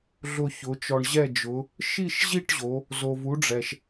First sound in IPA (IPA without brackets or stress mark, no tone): ɮ